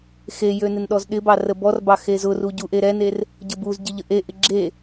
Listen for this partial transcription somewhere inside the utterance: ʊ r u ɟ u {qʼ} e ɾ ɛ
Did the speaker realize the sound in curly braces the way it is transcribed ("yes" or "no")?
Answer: no